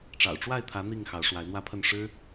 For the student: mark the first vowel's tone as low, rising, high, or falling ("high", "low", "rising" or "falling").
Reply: low